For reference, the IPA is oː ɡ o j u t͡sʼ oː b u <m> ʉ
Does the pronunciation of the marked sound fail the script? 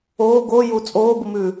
no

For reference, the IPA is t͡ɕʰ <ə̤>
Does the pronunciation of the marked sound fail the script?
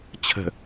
no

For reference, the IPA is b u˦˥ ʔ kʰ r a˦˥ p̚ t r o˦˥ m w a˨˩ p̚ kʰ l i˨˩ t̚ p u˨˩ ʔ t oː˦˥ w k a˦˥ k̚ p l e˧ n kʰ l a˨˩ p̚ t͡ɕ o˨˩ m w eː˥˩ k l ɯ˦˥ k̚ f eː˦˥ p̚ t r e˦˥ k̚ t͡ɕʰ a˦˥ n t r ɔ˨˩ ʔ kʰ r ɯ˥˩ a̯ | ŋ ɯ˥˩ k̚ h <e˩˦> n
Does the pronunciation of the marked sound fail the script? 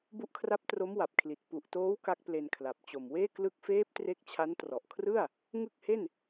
yes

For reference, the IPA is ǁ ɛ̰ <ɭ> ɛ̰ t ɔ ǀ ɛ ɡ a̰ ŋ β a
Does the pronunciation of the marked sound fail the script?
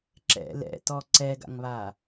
yes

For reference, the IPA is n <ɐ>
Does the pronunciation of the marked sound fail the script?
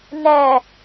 yes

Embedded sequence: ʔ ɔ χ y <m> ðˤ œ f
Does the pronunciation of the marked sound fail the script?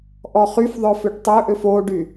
yes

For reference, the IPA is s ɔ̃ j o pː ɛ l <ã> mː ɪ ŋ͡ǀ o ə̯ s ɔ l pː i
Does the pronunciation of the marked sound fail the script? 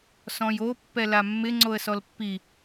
yes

